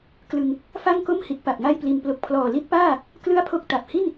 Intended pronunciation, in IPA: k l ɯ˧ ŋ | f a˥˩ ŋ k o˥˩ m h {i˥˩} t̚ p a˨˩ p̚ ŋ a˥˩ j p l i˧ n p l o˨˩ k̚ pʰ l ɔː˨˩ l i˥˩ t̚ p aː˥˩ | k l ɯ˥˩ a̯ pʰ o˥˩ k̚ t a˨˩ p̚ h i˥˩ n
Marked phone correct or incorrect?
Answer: incorrect